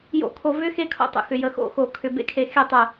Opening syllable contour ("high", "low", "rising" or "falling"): falling